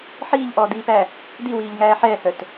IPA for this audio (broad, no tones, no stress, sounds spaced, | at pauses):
ħ iː ʎ ʔ ɔː d̪ iː p æ | d̪ i w iː ʎ ŋ æː ħ ɛː h œ t